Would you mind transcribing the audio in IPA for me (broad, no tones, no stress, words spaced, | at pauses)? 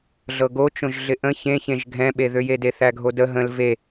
ɮɤɡo t͡ʃõʒɮɪʔə̃ çẽçẽʒ ɡʱɛ̃ɓeðøje deθæɡʱodə ɦə̃l ve